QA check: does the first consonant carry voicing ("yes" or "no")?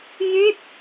yes